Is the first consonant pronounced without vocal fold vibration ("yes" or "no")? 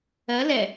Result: no